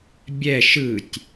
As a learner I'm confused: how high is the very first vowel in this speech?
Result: mid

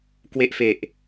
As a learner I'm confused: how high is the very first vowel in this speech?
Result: mid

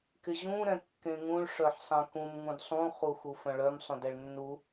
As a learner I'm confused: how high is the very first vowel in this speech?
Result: high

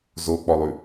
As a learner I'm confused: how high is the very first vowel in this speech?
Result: mid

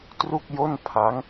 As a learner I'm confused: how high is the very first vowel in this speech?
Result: high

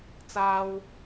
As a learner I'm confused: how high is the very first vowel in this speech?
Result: low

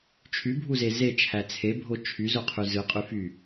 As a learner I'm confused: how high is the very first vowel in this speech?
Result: high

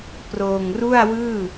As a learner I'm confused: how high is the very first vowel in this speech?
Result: mid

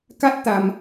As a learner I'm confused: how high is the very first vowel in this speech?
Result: low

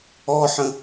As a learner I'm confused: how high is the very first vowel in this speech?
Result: mid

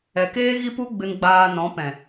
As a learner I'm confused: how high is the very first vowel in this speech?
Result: mid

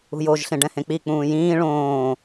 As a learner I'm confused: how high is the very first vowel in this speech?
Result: high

